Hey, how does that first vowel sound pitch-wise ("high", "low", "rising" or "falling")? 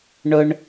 high